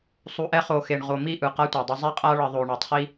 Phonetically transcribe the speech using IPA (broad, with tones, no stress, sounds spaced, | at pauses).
sˤ u˨ ʔ ɛ˦ χ o˨ x e˨ ɳ ʁ o˨ m i˦˨ ʔ ɯ˨ q a˦ tʷ ɛ˨ dˤ ʌ˦ zˤ i˦ qʼ a˦ ɭ ʌ˨ ðˤ o˨ ɳ e˨ tˤ χ i˦